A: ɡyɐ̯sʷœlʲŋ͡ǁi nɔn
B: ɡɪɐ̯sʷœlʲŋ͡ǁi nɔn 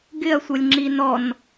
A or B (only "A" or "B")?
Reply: B